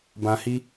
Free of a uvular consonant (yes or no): yes